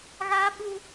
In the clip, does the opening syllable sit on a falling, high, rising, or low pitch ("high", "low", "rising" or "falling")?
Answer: high